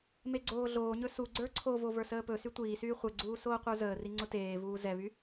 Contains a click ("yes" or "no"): yes